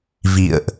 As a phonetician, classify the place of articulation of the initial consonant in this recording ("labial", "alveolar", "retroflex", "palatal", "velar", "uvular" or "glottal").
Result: labial